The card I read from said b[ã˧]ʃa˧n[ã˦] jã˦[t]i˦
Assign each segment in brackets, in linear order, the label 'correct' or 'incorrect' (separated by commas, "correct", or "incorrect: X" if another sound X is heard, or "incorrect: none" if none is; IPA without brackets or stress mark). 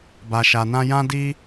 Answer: incorrect: a˧, correct, incorrect: d